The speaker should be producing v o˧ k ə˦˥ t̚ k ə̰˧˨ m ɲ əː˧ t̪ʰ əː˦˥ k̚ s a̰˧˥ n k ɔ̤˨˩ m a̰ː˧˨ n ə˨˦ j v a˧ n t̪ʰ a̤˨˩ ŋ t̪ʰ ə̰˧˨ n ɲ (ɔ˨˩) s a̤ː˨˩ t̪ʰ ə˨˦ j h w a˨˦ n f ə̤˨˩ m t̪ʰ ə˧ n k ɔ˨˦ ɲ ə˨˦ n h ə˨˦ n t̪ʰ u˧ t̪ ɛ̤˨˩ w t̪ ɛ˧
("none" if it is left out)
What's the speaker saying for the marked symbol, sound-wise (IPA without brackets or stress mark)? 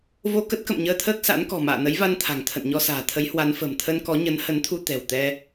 ɔ˧